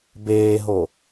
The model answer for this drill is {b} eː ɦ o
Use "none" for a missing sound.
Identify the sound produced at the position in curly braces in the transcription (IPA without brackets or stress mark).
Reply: b